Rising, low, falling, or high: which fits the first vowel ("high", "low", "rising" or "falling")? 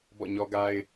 falling